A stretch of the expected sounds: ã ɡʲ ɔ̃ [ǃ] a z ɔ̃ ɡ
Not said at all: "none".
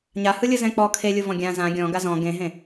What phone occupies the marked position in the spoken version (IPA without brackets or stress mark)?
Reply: ɡ